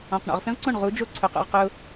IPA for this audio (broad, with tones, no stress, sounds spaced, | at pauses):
ɔ̃˩ q ɳ ɔ̰˩ ʁ f ĩ˥ ʁ ǀ õ˥˩ ɳ ʁ u˩˥ d͡ʒ o˥˩ ǀʰ ʊ˩˥ q ṵ˩ ʁ q ʊ˧